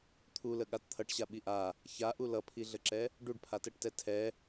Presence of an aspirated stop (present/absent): present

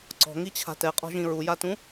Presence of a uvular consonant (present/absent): present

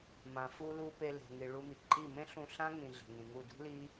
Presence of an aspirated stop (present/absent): absent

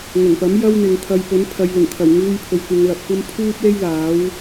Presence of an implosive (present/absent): absent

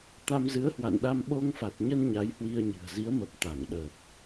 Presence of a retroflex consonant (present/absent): absent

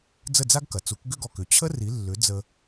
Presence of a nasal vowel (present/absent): absent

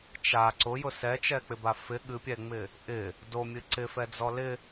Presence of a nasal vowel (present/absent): absent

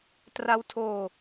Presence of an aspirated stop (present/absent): present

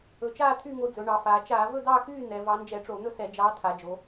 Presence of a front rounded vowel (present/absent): present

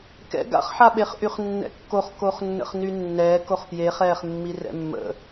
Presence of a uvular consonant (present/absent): present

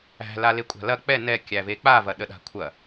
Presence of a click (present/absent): absent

